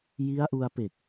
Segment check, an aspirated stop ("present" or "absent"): absent